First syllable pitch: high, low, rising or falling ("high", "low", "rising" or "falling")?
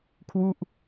falling